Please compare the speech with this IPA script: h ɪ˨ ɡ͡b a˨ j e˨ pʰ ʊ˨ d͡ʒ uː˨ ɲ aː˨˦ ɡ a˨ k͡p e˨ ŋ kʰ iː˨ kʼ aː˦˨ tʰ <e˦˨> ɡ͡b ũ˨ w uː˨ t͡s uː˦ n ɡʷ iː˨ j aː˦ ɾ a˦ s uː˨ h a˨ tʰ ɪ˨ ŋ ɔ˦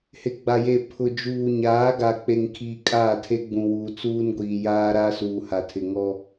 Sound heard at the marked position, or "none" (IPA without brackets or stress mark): e˦